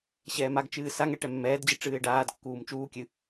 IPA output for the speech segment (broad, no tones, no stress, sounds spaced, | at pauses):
ɕ ɛː m a ɡ t͡ʃ ɨː s a ŋ ɛ ʈ ɛ mː ɛː d d͡ʑ ɨ ʈ͡ʂ ɨː ɪ̯ ɖ aː d kː uː m t͡ʃ uː kʲ ɨ